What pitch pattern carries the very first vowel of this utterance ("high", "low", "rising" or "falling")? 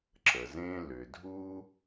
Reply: low